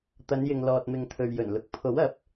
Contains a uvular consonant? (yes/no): no